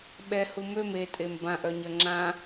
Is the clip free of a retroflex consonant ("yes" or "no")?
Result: yes